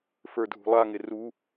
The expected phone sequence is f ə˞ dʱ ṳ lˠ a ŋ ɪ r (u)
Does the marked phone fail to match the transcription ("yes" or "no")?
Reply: no